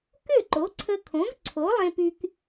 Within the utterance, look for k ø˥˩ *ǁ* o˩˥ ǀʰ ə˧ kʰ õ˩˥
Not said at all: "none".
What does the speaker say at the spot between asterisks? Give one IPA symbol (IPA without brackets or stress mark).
ǃ